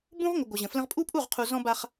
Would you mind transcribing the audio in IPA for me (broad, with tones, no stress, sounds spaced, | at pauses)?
b ũ˦ ʁ ŋʷ ə˨ ɡʷ ə˨ ʑ ə̃˨ f l ə̃˦ ʁ pʼ u˦ pʼ u˦˨ ʁ qʰ u˨ z ɔ̃˦ b a˦ χ